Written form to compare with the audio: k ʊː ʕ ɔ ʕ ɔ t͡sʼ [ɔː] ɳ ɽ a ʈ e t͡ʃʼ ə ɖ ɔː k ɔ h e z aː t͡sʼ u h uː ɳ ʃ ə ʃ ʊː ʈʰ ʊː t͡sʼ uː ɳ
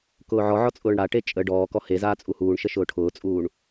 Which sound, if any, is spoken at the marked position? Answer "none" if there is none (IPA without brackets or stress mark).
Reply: ʊː